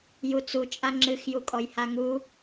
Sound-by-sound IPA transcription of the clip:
j u t͡s u t͡ʃʼ a ŋ͡ǁ ɨ x j u kʼ ɔ j h a ŋ u

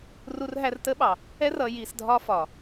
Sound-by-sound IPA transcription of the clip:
r u˧ r ɦ æ˧ r t ə˦ ɓ ɑ˨ | ɛ˦ r ʌ˧ j i˧ s dʱ ɒ˦ f ɒ˨

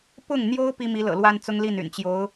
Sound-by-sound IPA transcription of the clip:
p ʊ˥˩ ŋ n̪ j o˥ ʊ̯ p i˥ m i˧˥ l ɤ̰˨˩ l w a˥ n t͡s ʊ˥ ŋ l i˥˩ n y̰˨˩ n t͡ɕ j o˧˥ ʊ̯

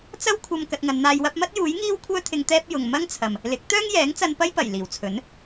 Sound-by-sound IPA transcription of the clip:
t͡s ɐ˥ w kʷʰ ɐ˧ m k ɐ˧ t̚ ŋ ɐ˨˧ n n̪ aː˧ j w ɐ˥ p̚ m ɐ˥ t̚ j uː˨˥ j ŋ iː˥ w kʷʰ œː˥ t̪ʰ ɪ˧ ŋ t̪ ɛː˥ p̚ j ʊ˨ ŋ m ɐ˥ ŋ t͡sʰ ɐ˨ m | l ɪ˨˥ k̚ t̪ œː˥ ŋ j ɛː˨˥ ŋ t͡s ɐ˧ n p ɐ˥ j p ɐ˨˩ j l iː˨˩ w t͡sʰ ɵ˨˥ n

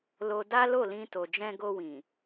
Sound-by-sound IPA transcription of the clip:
l o˧ d a˦ l o˦˨ l ĩ˧ t o˨ d͡ʒ ɛ̃˧ ɡ o˧ w ĩ˨

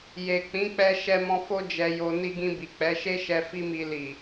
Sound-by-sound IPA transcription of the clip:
j e˨ k͡p ĩ˨˦ k͡p ɛ˧ ʃ ɛ˧ m ɔ̃˧ f o˦ d͡ʒ ɛ˧ j o˧ n i˧ ɡ ĩ˧ b i˨ k͡p ɛ˨˦ ʃ e˦ ʃ ɛ˧ f i˦ m i˧ l i˨

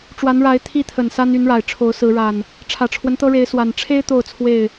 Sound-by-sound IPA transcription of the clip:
ʈ͡ʂ w a˨˦ n ɻ a˨˦ ɪ̯ t̪ʰ i˦ t̪ʰ ə˨˩ n s a˦ n y˨˦ n ɻ a˨˩ ɪ̯ ʈ͡ʂʰ o˨˦ ʊ̯ s ɹ̩˨˦ ɻ a˨˩ n | ʈ͡ʂʰ ä˨˩ ʈ͡ʂʰ w ə˦ n t̪ ɤ˦ ɻ e˨˦ ɪ̯ s w a˨˩ n ʈ͡ʂʰ e˦ ɪ̯ t̪ o˥˨ ʊ̯ t͡sʰ w e˥˨ ɪ̯

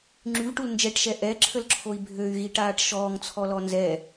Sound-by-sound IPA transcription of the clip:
ŋ͡ǁ y v ʈ u l n d͡ʒ ɛ ʈ ʃ ɛ ʔ ɛ ǁʰ ə l ǁʰ o i̯ bʱ ø y̯ ɣ i ʈ aː ʈ ʃ ɔː ŋ t͡sʰ ɔ l ɔ n z ɛ

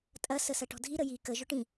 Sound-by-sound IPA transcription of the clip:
tʼ ɐ s ə s ɐ ʈ ɔ̤ dʱ i ɾ ə j i k ə ʒ ʊ ʈ ĩ

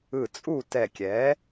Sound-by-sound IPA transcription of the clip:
ɯ˧˩ t͡sʼ u˥˨ t ɛ˧˩ kʲ ɛ˩˥

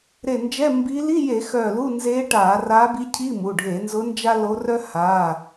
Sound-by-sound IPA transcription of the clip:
ɾ e˧˩ n d͡ʒ ɛ˧˥˧ m b i˧˥ l i˧˥˧ j e˧˩˧ x œ˧˩ l u˧˥˧ n z e˧˥ ʈ a˧˩˧ r a˧˥ b i˧˥ cʰ i˧˥˧ m u˩˧˩ ɖʱ e˧˩˧ n z ʊ˧˥ n d͡ʒ a˥ l o˧˥ r œ˥ h a˩˧˩

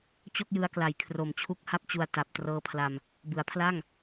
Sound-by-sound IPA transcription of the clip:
t͡ɕ o˥˩ k̚ j ɯ˧ a̯ k l a˨˩ j kʰ r o˨˩ m t͡ɕʰ u˦˥ k̚ h a˥˩ p̚ t͡ɕ u˧ a̯ t a˨˩ p̚ t r ɤː˦˥ pʰ l a˧ m | b ɯ˩˦ a̯ pʰ l a˥˩ ŋ

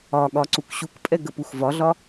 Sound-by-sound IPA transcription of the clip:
ɒ ɠ ɒ ǀ u k ɕ u k pʼ ɛ ɡ ə p u x v ɒ ɮ ɒ

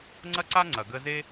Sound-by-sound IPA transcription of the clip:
ŋ͡ǀ ɐ˦ ǀ a˦ ŋ͡ǀ ɐ˨ ɡ ə˧ z e˦

